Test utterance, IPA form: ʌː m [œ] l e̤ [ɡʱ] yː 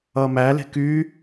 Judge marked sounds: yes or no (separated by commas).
no, no